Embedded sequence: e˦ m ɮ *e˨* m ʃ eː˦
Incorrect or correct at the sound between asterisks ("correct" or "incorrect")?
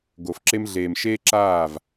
incorrect